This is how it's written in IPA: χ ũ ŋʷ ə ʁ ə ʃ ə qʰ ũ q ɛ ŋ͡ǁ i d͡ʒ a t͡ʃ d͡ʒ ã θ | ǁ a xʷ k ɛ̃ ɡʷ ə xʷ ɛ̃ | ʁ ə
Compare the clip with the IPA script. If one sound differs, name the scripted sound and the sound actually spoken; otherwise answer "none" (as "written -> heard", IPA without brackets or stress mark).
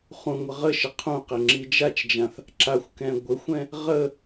none